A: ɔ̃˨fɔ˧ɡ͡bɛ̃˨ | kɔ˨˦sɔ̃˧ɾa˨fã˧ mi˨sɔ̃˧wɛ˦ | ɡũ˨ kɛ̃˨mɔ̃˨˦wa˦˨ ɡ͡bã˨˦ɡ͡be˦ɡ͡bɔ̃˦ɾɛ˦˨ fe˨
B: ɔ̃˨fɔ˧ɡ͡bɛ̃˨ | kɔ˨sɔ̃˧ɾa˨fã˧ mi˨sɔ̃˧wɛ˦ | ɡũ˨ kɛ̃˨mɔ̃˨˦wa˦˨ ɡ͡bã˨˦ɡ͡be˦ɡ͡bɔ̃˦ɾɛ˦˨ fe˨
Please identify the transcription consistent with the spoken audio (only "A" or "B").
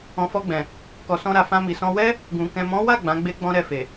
B